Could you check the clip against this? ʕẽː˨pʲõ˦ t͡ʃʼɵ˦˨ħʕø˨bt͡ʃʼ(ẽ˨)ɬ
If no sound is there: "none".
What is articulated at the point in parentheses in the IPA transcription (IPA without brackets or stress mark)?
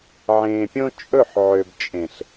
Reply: ẽ˨